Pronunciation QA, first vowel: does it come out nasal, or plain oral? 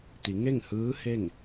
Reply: oral